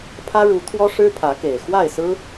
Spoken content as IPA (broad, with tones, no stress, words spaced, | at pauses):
pʰä˦ɻu˨˦t̪ʰwɔ˦ʂɻ̩˦ pʰä˨˦ke˨˩ɪ̯ xwa˥˨ɪ̯sɹ̩˦